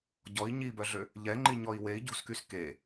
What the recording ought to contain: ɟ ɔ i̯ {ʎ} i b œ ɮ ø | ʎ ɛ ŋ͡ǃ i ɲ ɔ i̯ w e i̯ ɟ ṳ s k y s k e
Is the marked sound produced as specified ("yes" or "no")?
no